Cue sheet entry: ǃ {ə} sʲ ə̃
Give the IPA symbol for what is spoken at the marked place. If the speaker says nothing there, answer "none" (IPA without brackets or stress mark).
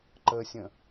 ə